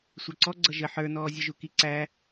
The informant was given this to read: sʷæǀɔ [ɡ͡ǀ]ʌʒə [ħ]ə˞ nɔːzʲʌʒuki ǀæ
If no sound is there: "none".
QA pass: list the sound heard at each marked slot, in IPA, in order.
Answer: ɡ͡ǀ, ħ

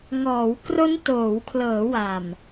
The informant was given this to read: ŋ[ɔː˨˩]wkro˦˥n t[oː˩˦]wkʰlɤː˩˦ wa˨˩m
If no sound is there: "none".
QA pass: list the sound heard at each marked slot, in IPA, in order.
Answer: ɔː˩˦, oː˩˦

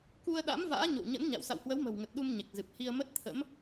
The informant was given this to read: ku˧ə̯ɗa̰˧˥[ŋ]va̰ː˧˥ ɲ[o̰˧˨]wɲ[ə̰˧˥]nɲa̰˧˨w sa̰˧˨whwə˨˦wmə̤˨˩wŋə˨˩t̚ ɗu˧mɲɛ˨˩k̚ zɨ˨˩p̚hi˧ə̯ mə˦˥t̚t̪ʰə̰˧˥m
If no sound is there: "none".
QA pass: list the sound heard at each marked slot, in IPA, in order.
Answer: m, o̰˧˨, ə̰˧˥

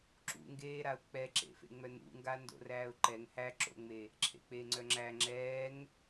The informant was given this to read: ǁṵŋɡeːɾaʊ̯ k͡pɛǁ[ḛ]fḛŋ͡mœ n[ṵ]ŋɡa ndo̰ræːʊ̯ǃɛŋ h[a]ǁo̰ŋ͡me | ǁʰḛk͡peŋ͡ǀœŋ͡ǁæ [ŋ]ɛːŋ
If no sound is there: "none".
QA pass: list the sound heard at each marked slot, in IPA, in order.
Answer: ḛ, ṵ, æ, ŋ͡ǁ

